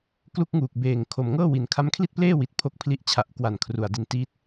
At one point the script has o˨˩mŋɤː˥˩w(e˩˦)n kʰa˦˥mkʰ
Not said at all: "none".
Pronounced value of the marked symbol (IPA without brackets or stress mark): i˩˦